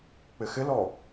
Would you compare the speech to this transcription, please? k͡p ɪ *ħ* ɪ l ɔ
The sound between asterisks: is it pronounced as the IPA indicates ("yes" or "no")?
no